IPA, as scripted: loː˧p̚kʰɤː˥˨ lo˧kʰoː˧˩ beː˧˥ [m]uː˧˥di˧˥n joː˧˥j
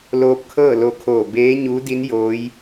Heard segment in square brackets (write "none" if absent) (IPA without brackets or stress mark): ɲ